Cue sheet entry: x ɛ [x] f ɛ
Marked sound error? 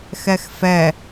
no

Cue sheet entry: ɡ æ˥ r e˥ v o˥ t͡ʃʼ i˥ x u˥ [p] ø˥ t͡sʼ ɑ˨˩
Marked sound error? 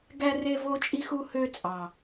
yes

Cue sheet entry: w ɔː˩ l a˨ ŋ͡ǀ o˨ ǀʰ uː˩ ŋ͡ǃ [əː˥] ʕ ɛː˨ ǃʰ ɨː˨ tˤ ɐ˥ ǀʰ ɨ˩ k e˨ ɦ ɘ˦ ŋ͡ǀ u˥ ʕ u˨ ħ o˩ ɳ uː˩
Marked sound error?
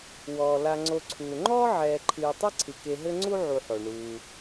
yes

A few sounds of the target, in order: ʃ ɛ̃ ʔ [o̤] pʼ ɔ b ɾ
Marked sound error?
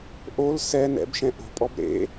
no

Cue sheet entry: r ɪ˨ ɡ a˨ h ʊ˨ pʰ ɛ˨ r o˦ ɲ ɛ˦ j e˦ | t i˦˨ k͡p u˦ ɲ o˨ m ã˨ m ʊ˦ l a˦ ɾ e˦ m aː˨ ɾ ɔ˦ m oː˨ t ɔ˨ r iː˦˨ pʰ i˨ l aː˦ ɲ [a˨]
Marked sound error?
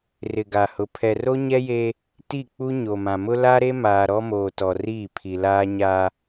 yes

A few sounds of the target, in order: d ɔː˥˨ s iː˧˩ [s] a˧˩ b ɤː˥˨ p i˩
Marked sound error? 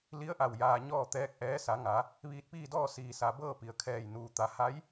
no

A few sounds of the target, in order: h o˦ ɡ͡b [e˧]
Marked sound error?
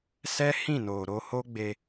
no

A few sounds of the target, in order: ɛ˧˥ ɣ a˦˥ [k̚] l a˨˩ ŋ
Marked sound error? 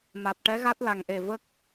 yes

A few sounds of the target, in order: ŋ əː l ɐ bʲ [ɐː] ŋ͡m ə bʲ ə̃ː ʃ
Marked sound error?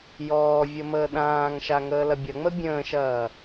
yes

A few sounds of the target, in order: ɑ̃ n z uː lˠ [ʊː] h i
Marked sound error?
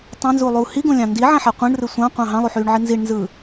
yes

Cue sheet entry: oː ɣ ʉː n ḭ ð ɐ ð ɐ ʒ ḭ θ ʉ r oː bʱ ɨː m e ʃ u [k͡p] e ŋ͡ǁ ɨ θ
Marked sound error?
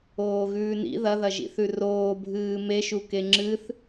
yes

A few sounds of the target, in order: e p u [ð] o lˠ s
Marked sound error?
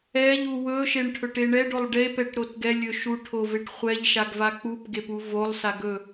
yes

